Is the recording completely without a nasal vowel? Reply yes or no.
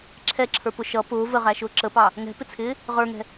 yes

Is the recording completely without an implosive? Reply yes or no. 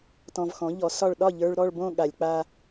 no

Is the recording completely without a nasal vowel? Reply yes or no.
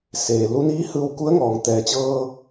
yes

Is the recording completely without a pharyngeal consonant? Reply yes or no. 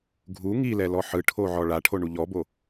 no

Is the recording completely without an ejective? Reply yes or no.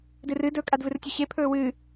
no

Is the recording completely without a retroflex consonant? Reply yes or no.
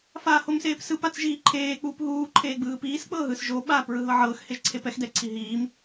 yes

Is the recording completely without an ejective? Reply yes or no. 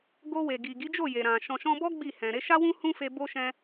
yes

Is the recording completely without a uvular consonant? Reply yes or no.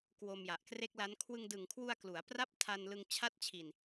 yes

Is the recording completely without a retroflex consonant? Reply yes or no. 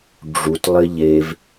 no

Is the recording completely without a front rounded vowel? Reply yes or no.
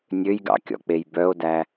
no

